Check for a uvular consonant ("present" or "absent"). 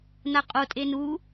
present